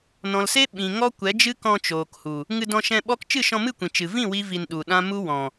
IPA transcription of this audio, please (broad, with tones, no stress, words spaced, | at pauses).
nɔ̃˨lse˦ ɓĩ˨ŋɔ˦ kʷɛ˨˦d͡ʒɨ˦kɔ̃˧ t͡ʃoː˨khu˨ | ŋɨ˧dɔ̃˧ʃɛ̃˧ɓɔ˦k t͡ʃɨ˦˨ʃɔ̃˧mɨ˦˨kʷĩ˨ t͡ʃɨ˨ vĩ˦˨ wi˦vi˧nɗu˨ɗã˦ mu˦wɔ̃˨